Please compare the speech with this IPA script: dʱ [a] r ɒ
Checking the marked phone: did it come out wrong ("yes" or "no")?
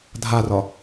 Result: no